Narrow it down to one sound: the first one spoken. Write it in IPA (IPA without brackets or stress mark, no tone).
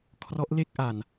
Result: kʰ